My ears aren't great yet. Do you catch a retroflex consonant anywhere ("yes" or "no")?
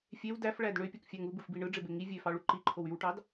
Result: yes